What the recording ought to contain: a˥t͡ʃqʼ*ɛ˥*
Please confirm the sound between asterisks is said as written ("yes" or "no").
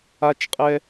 yes